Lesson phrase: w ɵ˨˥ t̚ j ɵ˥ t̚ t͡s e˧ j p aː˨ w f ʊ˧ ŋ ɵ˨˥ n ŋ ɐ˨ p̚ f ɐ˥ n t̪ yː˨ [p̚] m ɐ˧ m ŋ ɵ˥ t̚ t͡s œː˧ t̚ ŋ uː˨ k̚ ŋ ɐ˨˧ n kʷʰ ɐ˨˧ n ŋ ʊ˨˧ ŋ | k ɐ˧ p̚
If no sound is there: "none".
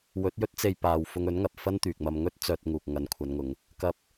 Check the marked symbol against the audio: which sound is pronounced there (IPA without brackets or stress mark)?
k̚